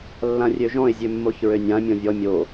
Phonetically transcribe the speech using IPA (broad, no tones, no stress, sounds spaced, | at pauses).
lː ã rʲ ø ʒ ɔ̃ ɪ̯ zʲ ø mː o ç ɹ ø nʲ ã mʲ ɔ̃ vʲ ɔ mʲ o